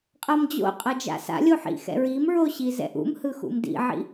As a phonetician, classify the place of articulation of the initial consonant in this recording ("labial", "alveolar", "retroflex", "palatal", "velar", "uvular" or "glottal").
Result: uvular